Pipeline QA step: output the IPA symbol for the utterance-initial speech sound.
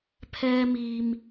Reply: pʰ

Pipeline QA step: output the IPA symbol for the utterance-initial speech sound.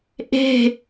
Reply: ʔ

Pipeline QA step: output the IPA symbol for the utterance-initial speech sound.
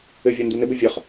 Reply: ɘ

